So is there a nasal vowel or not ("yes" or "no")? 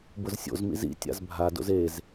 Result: no